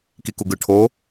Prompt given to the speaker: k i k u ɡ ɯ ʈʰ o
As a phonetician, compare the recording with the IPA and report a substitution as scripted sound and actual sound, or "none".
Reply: none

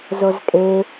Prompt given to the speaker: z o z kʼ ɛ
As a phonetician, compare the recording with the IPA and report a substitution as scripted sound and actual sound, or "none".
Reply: ɛ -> e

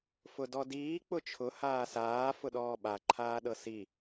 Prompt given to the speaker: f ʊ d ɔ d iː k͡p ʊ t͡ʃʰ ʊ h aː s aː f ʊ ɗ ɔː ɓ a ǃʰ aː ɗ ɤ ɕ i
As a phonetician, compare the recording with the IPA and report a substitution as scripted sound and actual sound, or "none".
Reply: ɕ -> s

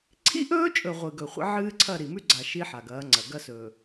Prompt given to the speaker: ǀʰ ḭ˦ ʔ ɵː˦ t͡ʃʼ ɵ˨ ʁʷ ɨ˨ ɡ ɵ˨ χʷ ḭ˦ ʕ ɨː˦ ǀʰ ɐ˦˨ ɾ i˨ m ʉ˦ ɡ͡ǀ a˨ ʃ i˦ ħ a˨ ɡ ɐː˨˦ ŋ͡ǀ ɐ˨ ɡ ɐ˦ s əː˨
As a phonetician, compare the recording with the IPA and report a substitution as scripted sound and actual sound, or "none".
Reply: əː˨ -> ɵː˨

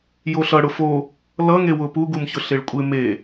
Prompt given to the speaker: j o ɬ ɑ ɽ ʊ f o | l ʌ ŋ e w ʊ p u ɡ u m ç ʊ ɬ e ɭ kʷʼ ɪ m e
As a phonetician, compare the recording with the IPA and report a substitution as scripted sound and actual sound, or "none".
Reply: ɑ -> ʌ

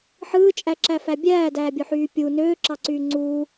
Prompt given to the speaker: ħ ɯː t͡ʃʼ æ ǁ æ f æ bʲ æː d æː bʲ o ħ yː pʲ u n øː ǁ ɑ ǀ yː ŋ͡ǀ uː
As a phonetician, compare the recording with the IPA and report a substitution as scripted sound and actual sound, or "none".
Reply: none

